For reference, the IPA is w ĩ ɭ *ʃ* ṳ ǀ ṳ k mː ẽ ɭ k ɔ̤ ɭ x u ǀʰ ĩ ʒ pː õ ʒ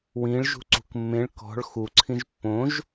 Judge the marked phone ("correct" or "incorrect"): incorrect